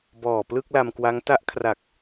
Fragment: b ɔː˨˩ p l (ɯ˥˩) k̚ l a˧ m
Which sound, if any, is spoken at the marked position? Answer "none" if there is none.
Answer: ɯ˥˩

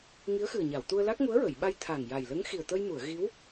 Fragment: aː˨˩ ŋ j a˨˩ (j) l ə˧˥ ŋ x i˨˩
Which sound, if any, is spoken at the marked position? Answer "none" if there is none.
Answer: j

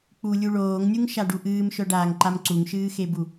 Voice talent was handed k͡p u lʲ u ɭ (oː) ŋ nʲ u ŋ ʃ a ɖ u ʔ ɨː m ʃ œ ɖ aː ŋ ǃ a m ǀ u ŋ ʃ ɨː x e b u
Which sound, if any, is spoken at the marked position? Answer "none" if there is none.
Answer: oː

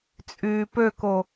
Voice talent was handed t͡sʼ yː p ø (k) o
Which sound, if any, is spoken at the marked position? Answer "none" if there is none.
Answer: k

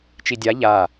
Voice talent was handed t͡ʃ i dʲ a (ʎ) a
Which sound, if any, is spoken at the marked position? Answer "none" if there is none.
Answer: ʎ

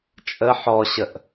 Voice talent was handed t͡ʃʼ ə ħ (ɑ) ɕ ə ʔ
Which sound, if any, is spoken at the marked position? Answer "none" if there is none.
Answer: ɔ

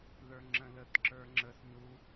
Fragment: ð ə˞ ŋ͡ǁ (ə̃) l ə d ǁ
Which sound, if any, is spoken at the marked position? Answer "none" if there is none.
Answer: ə̃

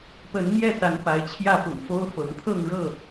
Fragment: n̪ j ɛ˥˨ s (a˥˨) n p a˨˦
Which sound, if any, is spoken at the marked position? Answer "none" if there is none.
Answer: a˨˦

